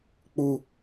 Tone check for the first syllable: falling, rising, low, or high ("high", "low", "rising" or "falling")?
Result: low